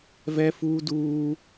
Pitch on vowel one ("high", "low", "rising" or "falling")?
high